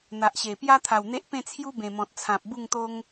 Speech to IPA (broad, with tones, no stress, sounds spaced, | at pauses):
n̪ a˨ ʔ ɕ e˨˩ p j a˦ t̪ʰ a˨˩ w n̪ e˦ ʔ p ẽ˥˧ t͡sʰ j u˦ b ẽ˨˩ m ɔ̃˨ t̚ t͡sʰ ã˨ p̚ b u˥˧ ŋ t̪ o˦ ŋ